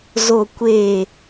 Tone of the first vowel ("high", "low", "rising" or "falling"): low